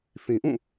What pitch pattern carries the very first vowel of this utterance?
low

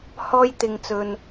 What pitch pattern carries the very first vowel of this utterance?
high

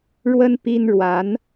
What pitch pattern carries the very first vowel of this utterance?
high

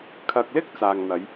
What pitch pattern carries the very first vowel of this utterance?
low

